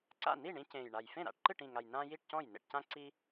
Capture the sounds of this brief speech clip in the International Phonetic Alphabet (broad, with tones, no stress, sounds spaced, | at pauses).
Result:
ǀ a̰˥˩ n i˥˩ ɳ ĩ˦ c ẽː˨˩ j ɳ a˨˩ j f ẽ˥˩ ɾ a̰˥˩ ʈ ǃ ɨ˥˩ ʈ ĩ˨˩ ŋ a˨˩ j n ãː˦ j i˥˩ ʈ c ɔ̃˥˩ j n ḛ˥˩ ʈ c ã˦ ǀ i˦